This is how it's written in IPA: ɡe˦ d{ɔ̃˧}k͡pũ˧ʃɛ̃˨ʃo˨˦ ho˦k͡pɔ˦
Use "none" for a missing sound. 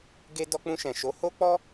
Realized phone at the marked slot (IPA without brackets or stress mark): ɔ˧